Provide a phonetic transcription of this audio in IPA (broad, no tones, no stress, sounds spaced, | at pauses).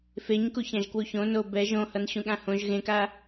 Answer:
f e ɲ k u ç ã ʒ k w u ç õ n o b ɛ ʒ õ h ʌ n ɕ ũ ɠ ã h õ ʒ ɣ ẽ k a